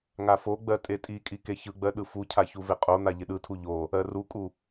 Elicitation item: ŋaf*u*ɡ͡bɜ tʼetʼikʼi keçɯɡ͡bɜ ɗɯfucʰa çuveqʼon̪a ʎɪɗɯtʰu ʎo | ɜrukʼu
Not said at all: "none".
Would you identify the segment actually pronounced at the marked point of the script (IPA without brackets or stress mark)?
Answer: o